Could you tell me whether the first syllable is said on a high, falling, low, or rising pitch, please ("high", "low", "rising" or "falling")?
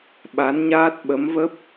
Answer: rising